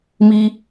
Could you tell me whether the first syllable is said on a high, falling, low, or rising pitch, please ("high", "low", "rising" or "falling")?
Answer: low